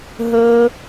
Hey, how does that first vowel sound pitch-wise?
high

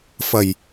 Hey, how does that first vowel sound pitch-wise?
low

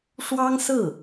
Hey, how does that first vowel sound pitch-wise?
high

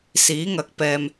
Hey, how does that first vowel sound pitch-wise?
rising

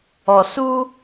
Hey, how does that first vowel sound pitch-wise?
low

